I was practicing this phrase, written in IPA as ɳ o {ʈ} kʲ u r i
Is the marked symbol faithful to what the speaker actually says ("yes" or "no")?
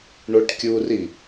yes